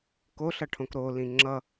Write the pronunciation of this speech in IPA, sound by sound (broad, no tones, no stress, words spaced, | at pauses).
koɬʌʈʰõk ɾolĩ ŋ͡ǁʌ